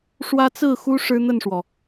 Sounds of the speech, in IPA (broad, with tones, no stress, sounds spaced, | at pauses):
ʂ w ä˦ t͡s ɹ̩˥˨ x u˦ ʂ ɻ̩˦ n̪ ə˥˨ n ʂ w ɔ˩